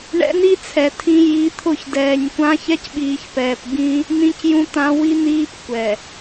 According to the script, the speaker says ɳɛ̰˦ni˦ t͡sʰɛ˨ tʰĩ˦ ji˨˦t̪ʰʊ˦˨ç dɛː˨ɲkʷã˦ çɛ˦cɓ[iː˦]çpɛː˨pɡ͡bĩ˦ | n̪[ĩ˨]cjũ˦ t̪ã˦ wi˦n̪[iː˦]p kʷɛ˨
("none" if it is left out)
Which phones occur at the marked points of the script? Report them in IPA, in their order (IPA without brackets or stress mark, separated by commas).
iː˨, ĩ˦, iː˦